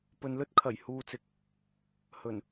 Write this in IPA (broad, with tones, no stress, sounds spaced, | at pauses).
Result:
p ɵ˨ n l ɵ˥ t̚ kʰ ɐ˨˩ j h uː˨ t͡s ɪ˨ k̚ | h ɵ˨˩ n